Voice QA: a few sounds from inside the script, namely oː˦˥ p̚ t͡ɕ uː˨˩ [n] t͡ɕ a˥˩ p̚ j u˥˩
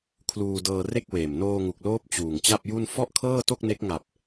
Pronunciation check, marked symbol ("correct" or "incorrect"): incorrect